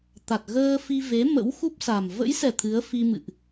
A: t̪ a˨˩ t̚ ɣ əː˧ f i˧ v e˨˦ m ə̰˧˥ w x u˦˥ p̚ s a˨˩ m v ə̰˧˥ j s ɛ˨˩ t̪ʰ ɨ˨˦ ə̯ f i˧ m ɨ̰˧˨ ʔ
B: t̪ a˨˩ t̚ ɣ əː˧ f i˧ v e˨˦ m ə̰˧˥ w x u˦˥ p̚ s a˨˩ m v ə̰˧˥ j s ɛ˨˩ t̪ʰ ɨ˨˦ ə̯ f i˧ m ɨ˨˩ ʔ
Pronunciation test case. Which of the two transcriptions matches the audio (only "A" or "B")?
A